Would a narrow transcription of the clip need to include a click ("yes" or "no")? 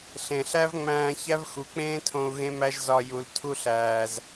no